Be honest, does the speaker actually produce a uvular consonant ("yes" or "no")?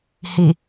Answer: no